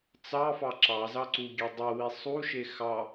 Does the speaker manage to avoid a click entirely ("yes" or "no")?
no